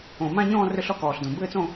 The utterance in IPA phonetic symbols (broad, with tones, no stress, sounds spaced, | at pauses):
õ˨˩ m ã˥˧ ɲ ɔ̃ː˥˧ r ʏ˥˧ ɬ ɔ˥˧ k ɔː˨˩ ɬ d õ˨˩ b ɘː˥˧ t͡s õ˥˧